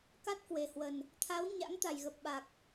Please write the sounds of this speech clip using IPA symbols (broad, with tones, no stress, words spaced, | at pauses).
ka˦˥t̚kwe˨˩hwə˨˩n | t̪ʰa˨˦w ɲa̰˧˥ŋt̪a˨˩jɣə˨˩p̚ ɓa˨˩k̚